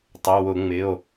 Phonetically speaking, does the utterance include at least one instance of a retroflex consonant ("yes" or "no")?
no